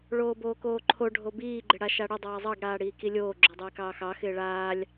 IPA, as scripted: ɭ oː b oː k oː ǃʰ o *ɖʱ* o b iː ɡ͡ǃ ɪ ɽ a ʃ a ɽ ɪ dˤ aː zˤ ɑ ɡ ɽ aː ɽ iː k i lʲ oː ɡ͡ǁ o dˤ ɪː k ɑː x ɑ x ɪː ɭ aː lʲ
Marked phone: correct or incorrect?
correct